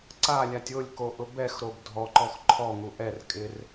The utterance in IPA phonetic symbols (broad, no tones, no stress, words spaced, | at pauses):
ǀalʲatʲ ʊlʲkoʔʊ bɛxɾob dʱɔǃɔx ǃʰɔŋu ʔɛr kʼɪr